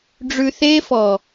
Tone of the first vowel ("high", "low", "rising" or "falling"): low